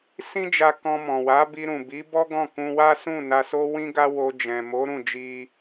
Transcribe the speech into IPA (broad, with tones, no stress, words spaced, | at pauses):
sĩ˦d͡ʒa˧ kɔ̃˧mɔ̃˨ wa˨˦bi˧ɾũ˨ bi˨˦bɔ˦ ɡɔ̃˦˨kũ˧wa˦sũ˦˨ na˧so˦ wĩ˦ɡa˦ wo˧d͡ʒɛ̃˨ mo˨˦ɾũ˦˨d͡ʒi˧